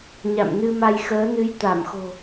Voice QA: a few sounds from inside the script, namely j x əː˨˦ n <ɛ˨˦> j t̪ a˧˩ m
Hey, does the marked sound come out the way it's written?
no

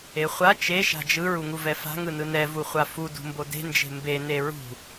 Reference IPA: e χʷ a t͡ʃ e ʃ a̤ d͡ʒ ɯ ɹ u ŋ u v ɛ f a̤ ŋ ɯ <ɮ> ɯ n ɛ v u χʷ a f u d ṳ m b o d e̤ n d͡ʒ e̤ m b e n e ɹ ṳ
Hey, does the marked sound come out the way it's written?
no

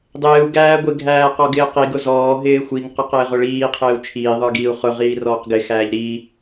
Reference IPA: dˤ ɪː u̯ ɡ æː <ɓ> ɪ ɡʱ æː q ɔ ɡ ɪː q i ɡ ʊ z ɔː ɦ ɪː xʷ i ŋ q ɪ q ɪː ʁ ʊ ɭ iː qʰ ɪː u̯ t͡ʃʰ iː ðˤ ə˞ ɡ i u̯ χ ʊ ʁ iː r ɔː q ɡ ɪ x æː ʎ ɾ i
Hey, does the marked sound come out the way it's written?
no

